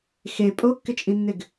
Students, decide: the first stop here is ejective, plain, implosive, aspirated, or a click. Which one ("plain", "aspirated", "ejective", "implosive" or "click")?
ejective